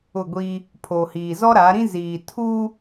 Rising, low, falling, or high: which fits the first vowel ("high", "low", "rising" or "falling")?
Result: falling